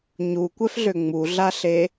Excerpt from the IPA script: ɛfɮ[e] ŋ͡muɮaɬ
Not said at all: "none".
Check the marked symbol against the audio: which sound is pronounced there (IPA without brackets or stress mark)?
ø